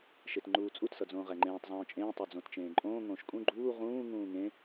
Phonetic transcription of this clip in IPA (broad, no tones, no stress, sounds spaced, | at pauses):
ʃ e t ŋ͡ǃ uː t͡sʼ u t s ʌ d͡z õː ʁ æ ŋ͡ǃ ẽː tˤ zˤ õː t͡ʃʼ ẽː tˤ o d͡z õ t t͡ʃ ẽː ǃʼ õː ŋ õː ʃ kʼ ũ ɡ͡ǃ uː ʁ ũː ŋ ũː ŋ ẽ